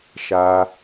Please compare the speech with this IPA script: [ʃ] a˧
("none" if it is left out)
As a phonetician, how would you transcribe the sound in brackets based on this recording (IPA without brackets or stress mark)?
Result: ʃ